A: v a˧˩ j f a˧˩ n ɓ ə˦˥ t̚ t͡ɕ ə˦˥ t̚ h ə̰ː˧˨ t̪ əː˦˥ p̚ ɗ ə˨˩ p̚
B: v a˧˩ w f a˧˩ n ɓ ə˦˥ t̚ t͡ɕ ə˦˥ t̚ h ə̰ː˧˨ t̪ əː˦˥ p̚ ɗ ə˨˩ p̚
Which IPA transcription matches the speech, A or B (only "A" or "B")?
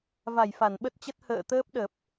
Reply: A